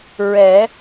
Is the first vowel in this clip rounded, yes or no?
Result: no